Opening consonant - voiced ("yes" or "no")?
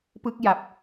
no